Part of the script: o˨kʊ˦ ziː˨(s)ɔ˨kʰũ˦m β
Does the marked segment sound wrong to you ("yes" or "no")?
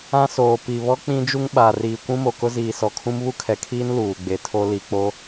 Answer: no